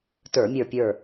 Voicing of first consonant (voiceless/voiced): voiceless